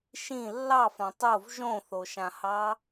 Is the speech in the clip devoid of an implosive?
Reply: yes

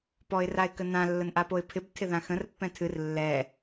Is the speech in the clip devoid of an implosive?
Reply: yes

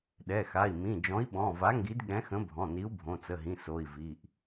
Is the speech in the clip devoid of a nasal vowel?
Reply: no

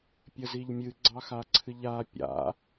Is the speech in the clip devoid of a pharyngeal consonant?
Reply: yes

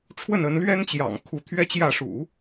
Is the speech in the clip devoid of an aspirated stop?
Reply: no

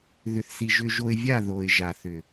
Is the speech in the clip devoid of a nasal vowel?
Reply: yes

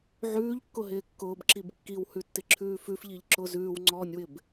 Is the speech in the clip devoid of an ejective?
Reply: yes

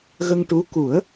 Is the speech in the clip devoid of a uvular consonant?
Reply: yes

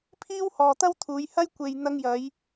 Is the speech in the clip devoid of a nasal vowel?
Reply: yes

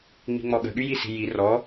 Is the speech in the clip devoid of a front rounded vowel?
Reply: no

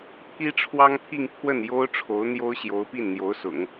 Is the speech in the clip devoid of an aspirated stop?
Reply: no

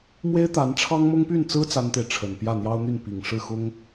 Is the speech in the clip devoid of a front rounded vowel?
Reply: no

